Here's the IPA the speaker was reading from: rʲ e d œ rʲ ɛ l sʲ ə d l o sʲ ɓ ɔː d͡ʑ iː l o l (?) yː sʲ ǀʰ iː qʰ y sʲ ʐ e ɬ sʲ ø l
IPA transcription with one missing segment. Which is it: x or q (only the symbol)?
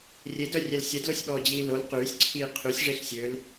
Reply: q